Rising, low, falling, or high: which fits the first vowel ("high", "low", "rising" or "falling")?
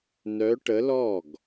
rising